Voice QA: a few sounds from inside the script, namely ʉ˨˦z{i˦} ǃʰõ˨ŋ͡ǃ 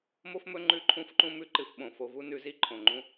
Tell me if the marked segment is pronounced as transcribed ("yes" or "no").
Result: yes